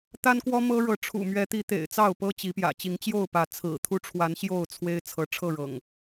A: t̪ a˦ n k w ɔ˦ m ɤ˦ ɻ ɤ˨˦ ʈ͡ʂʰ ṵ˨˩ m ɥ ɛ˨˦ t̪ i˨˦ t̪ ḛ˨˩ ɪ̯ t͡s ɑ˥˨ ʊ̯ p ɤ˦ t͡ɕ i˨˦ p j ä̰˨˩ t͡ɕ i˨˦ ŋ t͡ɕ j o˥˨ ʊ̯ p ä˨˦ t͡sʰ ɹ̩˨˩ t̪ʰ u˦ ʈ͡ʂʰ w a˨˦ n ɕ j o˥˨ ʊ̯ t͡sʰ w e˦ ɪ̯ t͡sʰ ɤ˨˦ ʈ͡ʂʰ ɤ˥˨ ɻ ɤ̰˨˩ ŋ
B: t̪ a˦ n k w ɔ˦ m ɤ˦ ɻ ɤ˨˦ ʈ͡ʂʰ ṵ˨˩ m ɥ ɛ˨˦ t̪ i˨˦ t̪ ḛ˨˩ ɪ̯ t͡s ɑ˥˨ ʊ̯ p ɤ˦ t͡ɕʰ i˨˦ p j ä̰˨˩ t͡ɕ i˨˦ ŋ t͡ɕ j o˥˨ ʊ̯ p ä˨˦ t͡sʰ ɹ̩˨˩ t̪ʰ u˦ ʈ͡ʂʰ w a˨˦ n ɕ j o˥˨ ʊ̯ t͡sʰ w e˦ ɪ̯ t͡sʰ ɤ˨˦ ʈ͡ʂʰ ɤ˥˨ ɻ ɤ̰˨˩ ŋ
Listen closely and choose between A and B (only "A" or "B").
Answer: A